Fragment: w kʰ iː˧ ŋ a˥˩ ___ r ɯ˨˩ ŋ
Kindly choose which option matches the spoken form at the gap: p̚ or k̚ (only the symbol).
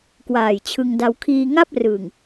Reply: p̚